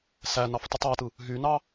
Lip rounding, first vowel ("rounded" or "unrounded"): unrounded